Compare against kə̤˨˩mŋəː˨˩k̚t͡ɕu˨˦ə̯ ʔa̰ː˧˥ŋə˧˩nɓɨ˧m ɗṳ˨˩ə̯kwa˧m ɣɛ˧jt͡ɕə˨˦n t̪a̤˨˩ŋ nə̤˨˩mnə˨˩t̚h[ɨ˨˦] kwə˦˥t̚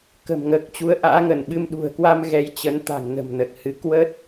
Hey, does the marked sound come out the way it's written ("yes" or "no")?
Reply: yes